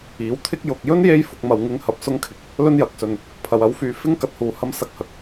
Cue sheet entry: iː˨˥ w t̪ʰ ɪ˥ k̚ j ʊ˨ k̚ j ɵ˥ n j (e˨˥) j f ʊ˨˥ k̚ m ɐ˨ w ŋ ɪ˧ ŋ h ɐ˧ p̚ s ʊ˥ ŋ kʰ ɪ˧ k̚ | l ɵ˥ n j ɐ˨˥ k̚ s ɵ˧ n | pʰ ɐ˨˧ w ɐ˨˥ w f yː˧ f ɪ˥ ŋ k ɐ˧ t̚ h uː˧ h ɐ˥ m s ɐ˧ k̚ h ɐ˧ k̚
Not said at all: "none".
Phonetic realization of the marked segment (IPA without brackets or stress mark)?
e˥